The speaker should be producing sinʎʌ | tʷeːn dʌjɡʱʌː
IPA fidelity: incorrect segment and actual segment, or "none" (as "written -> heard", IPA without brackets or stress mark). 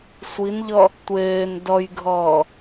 s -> sʷ